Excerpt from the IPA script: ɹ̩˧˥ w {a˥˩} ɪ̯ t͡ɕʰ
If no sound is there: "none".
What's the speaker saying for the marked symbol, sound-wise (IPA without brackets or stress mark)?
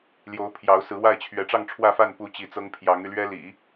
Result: a˥˩